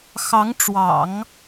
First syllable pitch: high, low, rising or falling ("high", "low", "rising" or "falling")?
rising